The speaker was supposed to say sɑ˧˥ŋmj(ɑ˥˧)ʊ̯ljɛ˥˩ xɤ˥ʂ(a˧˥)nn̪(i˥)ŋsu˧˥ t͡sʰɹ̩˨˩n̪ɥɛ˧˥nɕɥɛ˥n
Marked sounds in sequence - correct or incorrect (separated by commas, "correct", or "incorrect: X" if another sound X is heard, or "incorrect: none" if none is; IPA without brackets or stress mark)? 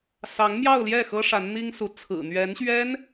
correct, correct, correct